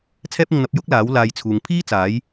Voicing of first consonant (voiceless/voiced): voiceless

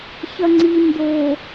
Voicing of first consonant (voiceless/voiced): voiceless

